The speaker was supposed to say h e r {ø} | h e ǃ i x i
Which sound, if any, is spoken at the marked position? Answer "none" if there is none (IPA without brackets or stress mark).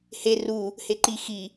u